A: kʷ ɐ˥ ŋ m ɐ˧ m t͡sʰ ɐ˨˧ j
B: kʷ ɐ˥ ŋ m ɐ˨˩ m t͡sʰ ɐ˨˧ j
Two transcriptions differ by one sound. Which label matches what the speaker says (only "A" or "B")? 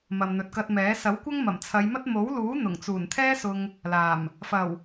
B